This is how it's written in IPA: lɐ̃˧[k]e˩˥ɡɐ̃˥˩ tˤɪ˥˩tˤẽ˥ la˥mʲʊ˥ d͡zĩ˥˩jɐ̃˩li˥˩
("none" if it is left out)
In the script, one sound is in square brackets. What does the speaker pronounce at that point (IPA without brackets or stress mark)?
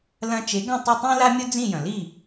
t͡ʃ